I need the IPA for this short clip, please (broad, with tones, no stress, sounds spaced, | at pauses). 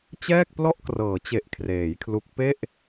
t͡ɕ ɛː˥˩ k̚ p l ɔ˥˩ ʔ k r ɤː˩˦ t͡ɕ e˨˩ ʔ kʰ r eː˩˦ j kʰ l u˦˥ k̚ p e˥˩ ʔ